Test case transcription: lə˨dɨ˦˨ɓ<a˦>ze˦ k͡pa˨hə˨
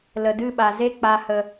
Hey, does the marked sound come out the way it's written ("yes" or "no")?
no